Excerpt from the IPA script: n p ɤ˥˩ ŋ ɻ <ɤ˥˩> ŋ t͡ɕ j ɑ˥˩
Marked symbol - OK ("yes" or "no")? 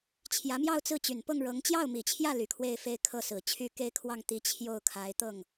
no